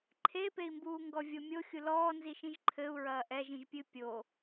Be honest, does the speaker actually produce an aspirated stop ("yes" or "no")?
yes